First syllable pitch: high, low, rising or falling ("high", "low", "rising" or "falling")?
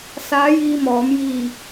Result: rising